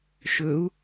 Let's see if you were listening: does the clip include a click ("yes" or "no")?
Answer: no